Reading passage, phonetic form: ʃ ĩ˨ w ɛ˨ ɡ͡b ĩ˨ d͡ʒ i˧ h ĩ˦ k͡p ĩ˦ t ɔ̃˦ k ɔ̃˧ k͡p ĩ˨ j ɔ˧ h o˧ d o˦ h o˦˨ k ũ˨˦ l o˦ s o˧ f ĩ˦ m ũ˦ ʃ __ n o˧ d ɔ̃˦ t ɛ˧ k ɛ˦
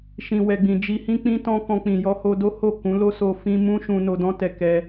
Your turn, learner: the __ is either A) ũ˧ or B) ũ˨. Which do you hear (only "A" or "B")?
A